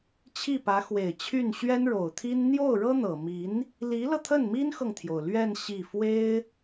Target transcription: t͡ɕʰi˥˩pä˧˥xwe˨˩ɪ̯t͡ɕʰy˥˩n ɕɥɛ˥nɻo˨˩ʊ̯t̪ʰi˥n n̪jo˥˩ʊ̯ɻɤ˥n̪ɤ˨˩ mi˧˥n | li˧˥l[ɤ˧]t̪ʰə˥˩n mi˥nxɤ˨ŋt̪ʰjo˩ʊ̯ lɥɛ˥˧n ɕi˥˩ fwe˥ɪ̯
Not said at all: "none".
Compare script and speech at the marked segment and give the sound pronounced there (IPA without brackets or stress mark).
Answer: ɤ˧